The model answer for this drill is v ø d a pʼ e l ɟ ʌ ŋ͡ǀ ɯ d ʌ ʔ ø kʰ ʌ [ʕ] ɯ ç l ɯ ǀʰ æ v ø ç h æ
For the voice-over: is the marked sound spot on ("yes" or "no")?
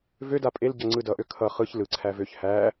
no